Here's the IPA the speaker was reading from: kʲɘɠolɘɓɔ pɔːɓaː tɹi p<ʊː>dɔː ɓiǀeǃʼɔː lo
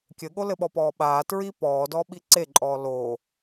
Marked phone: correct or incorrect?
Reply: incorrect